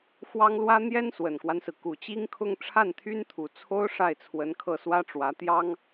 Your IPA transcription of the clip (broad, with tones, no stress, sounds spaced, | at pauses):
x w ɑ˥ ŋ l w ä˥ n̪ j ɛ˥ n s w ə˨˩ n k w a˦ n s ɹ̩˩ k u˨˩ t͡ɕ i˥ ŋ kʰ ʊ˥˧ ŋ ʈ͡ʂʰ a˥˩ n t̪ʰ y˥ n t̪ʰ u˨˩ t͡sʰ o˥ ʊ̯ ʂ a˥˩ ɪ̯ t͡sʰ w ə˧˥ n kʰ ɤ˥˩ s w ä˥ ʈ͡ʂ w ä˧˥ t̪ j ɑ˥ ŋ